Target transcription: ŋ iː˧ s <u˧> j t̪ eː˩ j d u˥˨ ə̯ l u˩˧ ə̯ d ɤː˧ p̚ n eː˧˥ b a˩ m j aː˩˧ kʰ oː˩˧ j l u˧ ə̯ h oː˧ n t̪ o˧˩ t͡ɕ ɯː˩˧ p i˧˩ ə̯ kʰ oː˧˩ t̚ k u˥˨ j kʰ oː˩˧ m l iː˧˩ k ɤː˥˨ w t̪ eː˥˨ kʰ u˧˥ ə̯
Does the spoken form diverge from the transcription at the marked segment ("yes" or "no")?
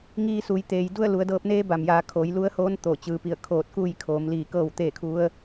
yes